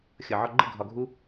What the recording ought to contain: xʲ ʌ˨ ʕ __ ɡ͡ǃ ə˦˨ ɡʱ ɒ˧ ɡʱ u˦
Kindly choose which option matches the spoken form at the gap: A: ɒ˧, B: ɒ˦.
A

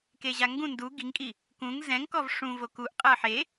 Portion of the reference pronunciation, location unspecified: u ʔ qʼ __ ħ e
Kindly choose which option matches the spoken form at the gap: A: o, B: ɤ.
B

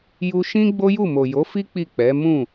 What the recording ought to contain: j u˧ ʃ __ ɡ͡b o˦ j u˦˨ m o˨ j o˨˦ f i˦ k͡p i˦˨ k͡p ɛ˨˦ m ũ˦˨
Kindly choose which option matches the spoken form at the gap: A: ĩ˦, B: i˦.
A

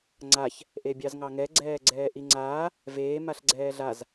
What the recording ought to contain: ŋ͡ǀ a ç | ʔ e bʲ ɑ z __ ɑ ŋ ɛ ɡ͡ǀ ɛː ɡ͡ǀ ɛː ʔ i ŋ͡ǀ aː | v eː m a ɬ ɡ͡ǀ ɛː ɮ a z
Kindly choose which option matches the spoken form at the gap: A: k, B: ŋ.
B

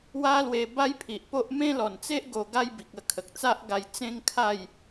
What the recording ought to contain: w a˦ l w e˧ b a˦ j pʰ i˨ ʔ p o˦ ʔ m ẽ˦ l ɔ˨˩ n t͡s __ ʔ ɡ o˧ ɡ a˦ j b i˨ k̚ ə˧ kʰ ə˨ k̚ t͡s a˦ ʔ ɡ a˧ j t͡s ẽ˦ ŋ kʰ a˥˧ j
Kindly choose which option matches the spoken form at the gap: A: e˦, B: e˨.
A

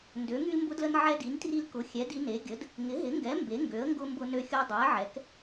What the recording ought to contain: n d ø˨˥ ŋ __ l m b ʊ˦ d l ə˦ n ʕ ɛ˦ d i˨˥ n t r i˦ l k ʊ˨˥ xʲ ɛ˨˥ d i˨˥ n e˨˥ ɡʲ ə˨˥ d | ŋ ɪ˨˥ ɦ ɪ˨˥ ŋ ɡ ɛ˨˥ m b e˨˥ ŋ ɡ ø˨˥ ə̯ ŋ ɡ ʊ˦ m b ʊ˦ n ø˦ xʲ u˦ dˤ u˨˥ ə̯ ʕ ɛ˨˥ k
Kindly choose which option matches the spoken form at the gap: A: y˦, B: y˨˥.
A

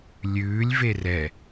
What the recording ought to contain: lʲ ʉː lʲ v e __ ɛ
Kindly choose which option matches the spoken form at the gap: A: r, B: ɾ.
A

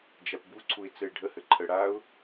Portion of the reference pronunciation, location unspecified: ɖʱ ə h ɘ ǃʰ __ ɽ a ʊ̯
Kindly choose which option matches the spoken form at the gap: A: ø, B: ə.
B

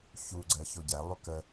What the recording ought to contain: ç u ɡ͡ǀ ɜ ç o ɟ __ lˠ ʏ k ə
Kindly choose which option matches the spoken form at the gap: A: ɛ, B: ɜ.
A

